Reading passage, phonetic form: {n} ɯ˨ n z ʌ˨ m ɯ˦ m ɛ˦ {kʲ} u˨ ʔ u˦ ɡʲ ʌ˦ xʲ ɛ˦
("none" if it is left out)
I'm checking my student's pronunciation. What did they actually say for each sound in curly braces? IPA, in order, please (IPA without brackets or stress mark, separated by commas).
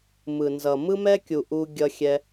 m, kʲ